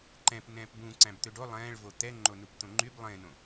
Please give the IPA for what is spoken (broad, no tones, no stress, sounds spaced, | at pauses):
ǃ ɛ̃ p n ɛ̃ː p b ũ ǀ æ̃ b t̪ ø ɖ o lˠ ɛ̃ː ɭ v o t̪ ɛ ŋ͡ǃ o n u p t̪ õ ŋ͡ǃ y b lˠ ẽ n õ